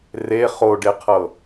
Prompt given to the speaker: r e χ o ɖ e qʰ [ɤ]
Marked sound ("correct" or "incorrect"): correct